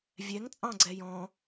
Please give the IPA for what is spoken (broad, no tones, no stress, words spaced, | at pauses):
vʲɛŋ t͡sʼɑ̃ɡ͡ǀɛjɔ̃